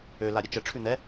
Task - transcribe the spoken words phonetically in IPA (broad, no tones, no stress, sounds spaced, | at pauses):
ø l a ɾʲ ɘ t͡ʃ ə ʈ͡ʂʰ ʉ n̪ ɛ